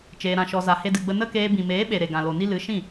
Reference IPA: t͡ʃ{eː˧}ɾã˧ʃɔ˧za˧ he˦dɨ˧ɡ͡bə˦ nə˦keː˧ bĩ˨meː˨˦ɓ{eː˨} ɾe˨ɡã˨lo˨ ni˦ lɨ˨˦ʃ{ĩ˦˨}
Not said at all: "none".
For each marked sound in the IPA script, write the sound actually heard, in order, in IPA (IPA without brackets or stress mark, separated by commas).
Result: eː˧, e˨, ĩ˦˨